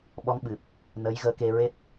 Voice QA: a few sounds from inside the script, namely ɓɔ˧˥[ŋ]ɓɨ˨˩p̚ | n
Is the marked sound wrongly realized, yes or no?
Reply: no